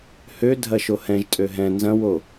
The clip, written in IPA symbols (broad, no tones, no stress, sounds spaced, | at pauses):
h ø dʱ ɐ ʃ o h ɛ̃ ʒ tʼ ø ɦ ɛ̃ n z ɐ̃ w o